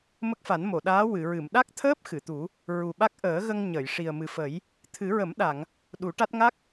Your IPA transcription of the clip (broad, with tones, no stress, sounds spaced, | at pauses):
m ə˦˥ k̚ f a˨˩˦ n m o˨˩˨ ɗ aː˧˥ w ɨ˨˩˨ ɹ ɨ˨˩˨ m ɗ a˦˥ k̚ t̪ʰ əː˦˥ p̚ x ɨ˨˩˨ t̪ u˨˩˦ | ɹ u˨˩ ɓ a˦˥ k̚ ʔ əː˨˩˦ ɣ ə˧ ŋ ɲ ə˨˩˨ j ʂ i˨˩ ə̯ m ɨ˨˩ f ə˨˩˦ j | t̪ʰ ɨ˨˩˦ ɹ ə˨˩˦ m ɗ a˨˩˨ ŋ | ɗ u˨˩˦ ʈ a˦˥ t̚ ŋ a˦˥ k̚